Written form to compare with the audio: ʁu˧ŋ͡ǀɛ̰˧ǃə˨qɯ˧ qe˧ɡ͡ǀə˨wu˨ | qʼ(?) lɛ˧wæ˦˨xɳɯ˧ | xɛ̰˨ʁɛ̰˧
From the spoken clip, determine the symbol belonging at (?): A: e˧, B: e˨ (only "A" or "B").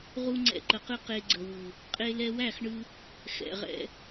A